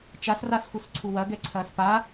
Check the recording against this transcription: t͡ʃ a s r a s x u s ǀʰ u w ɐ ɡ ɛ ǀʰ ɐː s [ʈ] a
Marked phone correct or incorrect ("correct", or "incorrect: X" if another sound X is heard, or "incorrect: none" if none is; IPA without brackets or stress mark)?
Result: incorrect: p